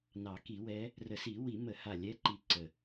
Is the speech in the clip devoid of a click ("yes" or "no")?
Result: no